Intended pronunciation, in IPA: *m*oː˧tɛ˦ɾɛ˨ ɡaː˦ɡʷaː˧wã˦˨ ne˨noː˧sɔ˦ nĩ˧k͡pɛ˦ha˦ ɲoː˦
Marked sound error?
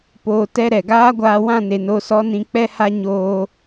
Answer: yes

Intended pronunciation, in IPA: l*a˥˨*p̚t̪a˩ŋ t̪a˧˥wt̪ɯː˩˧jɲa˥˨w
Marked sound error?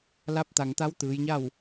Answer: yes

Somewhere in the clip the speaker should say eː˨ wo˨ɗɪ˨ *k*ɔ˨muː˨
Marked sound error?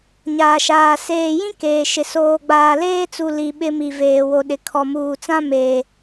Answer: yes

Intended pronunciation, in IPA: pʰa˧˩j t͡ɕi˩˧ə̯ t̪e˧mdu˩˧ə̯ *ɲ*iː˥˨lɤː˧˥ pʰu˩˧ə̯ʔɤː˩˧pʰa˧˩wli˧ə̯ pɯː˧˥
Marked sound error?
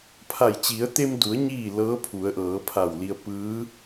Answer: no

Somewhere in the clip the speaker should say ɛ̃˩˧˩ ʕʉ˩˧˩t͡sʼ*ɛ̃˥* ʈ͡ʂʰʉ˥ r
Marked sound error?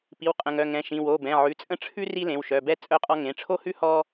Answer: yes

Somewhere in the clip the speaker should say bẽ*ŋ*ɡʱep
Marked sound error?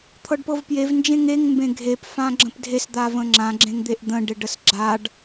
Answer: yes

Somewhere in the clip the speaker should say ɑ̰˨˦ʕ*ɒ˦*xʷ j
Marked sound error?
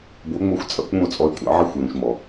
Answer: yes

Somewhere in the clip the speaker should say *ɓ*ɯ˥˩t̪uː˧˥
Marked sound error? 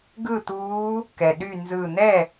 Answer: yes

